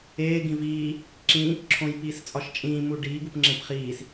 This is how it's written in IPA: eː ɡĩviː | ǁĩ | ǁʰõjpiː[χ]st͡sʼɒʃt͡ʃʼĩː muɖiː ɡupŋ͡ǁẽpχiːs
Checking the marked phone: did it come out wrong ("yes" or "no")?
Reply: yes